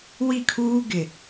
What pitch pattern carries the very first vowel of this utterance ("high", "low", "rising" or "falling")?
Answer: falling